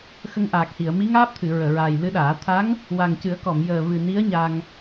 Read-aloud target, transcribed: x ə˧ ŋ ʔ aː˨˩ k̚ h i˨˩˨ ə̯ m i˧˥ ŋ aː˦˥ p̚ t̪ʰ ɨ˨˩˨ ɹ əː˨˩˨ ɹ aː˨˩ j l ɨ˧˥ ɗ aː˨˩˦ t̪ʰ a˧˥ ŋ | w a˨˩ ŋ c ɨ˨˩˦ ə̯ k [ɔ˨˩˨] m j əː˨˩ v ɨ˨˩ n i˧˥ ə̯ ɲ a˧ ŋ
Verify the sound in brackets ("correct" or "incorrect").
correct